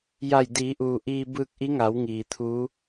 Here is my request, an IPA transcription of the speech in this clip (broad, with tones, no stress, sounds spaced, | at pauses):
j a˧˩ j d iː˩˧ ʔ uː˩ ʔ iː˧ b ɯː˧ k̚ ʔ i˧˥ ŋ a˩˧ w ŋ iː˩ t̪ʰ uː˧˥